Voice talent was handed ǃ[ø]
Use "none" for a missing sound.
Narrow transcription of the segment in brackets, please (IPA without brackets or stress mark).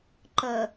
ə